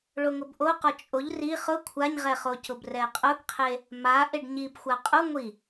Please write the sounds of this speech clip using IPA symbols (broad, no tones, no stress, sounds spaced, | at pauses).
ɭ o ŋ ʊ b ʔ o q ɔ t͡ʃʼ o ʎ r i χ ʊ kʷʰ a ɲ ʁ ɛ χ o c ʊ b r ɛ qʼ ʊ ɡ qʰ e | m a ʔ e ɖ ɲ i b xʷ a qʼ u ŋʷ i